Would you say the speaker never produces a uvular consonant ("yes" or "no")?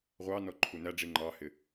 no